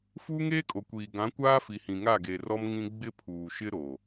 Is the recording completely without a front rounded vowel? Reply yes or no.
yes